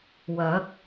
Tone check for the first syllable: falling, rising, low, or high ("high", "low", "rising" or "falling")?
rising